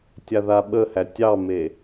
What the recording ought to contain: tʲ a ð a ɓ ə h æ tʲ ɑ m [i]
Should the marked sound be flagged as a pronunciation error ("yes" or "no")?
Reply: yes